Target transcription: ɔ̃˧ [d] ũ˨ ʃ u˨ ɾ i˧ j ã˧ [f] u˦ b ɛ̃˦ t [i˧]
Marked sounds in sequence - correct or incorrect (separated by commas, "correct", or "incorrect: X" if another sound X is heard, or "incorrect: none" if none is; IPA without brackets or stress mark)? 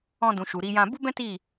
correct, incorrect: b, incorrect: i˦˨